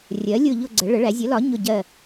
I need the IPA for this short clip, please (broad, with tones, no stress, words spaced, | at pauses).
rʲɜ˩˥ lʲʊ˦˨ ʎʊ˦˨ ɡ͡ǀə˩˥ ɭə˩˥ɭæ˩˥ zʲə˩˥lɒ˩˥ ɲʊ˦˨ɟɜ˦˨